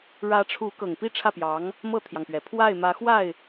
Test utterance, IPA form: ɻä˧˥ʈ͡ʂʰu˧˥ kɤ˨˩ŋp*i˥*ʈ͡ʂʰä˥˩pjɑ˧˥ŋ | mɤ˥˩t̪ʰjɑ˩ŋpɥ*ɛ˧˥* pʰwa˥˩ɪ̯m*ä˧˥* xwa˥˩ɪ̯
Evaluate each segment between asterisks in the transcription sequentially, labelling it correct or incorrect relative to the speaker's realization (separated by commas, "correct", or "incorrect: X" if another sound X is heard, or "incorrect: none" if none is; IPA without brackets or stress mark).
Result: correct, incorrect: ɛ˩, correct